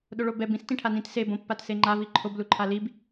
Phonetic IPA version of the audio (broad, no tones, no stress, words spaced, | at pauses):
ɗoɭobɛb ĩs tĩʈʰanĩt seb õpːatseŋ͡ǃa viǃʰob luǃʰalib